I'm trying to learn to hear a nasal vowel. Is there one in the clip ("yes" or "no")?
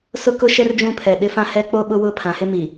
yes